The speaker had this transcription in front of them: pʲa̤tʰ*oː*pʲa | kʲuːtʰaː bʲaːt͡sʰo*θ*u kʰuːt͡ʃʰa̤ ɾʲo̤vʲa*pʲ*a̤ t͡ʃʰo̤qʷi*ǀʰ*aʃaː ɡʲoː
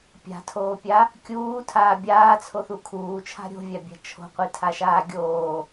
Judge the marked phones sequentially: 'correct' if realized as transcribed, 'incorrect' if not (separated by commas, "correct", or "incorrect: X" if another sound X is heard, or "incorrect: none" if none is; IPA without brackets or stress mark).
correct, correct, incorrect: bʲ, incorrect: tʰ